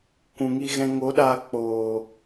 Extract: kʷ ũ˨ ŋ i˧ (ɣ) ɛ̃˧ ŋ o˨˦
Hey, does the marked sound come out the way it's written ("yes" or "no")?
yes